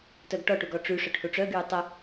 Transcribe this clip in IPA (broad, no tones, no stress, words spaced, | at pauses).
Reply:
tœɡʈɔʈuɡ ɔʈ͡ʂyʂœʈ huʈ͡ʂœɡyː tˤə